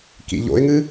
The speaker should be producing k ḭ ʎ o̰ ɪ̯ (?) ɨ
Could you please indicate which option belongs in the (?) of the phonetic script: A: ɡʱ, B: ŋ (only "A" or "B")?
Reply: B